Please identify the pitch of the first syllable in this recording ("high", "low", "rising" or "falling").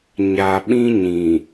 low